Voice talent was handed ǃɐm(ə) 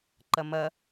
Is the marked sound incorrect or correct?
incorrect